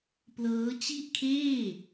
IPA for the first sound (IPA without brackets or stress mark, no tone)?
p